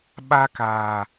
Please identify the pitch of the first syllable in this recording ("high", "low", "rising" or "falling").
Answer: high